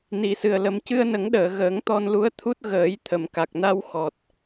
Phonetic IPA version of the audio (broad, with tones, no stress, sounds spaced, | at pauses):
n i˨˩˦ s ɨ˨˩ ə̯ l ə˧ m c ɨ˧ ə̯ n ə˨˩˦ ŋ ɗ əː˨˩˨ ɣ əː˨˩˦ ŋ t̪ ɔ˧ n l u˧˥ ə̯ t̪ʰ u˦˥ t̚ ɣ əː˨˩˦ j t̪ʰ ə˨˩˨ m k a˨˩ k̚ n a˧ w x ɔ˨˩ t̚